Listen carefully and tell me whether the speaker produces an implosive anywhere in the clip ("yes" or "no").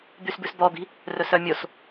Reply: no